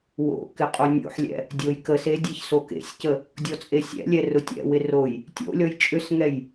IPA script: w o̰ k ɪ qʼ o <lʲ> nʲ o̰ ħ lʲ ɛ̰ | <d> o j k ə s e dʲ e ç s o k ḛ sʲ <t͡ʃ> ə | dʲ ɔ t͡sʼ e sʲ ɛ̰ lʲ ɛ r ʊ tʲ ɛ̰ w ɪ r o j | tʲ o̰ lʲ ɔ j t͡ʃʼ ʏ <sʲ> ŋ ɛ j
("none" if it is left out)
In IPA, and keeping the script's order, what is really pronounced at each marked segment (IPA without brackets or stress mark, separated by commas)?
none, dʲ, c, s